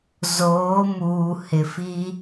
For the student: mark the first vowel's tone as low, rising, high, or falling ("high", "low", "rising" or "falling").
rising